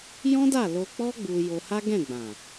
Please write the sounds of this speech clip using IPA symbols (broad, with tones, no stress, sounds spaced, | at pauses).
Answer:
j ɔ̃˦ d a˦˨ l o˧ k͡p ɔ˦ ɡ͡b u˧ j o˧ h a˦ ɡ ɛ̃˦˨ ɡ͡b ã˨